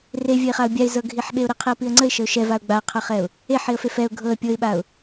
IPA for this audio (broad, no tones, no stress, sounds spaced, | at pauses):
r e vʲ ə ɪ̯ χ a ʊ̯ bʲ a ɪ̯ z ɤ ɡʱ i ħ ɓ e ʊ̯ ɾ i qʰ i ə̯ p i ə̯ ŋ͡ǀ ə ɪ̯ ʃ ə ʊ̯ ʃ ɛ v a ʊ̯ ɡ͡b a qʰ ɤ χ ɛ ʊ̯ | e ħ i ə̯ f e f ɛ ʊ̯ ɡʱ ɤ ə̯ pʲ ɤ ɪ̯ ɓ a ʊ̯